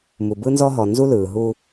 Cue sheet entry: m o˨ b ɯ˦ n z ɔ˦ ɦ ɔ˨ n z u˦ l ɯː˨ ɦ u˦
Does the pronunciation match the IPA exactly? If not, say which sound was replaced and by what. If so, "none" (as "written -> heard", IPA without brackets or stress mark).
o˨ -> u˨